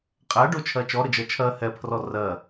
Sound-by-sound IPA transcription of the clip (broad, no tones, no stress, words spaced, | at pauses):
qʼæɖot͡ʃʰɜ t͡ʃɔɾəd͡ʒɜ t͡ʃʰɜ hɛpʰrɔ rɜ